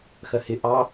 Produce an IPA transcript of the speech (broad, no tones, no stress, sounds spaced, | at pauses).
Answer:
x ɜ h ɪ ʔ ɑ